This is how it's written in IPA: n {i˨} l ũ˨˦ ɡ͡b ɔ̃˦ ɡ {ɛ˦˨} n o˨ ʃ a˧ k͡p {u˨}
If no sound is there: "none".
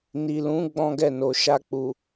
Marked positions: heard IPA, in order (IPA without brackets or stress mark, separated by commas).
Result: i˨, ɛ˦˨, u˨